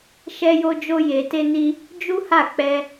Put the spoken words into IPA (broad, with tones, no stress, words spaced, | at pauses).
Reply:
ʃɛ˦jo˦ d͡ʒo˦je˧te˦ni˦ | d͡ʒu˦ha˦˨k͡pɛ˧